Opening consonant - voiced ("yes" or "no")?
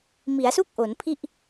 yes